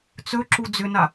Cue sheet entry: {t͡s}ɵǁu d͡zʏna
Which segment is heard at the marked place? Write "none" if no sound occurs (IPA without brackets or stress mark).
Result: t͡s